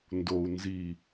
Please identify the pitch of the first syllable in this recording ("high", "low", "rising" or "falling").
low